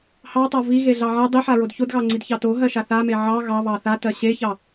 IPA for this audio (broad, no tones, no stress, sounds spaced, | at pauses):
h ɑ tˤ a v i ɣ e ɮ ɑ ʕ a dˤ i ħ a ɹ o d ç o d ɣ ɑ ŋ͡ǀ i d ç ɑ t o ɦ ɜ ʃ a θ a m e ʕ ɑ ɣ ɑ β ɑ θ a t ɜ ɕ e ç ɑ